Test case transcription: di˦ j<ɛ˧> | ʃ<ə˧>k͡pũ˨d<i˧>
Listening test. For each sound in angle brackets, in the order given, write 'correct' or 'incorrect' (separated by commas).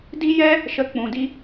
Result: incorrect, correct, incorrect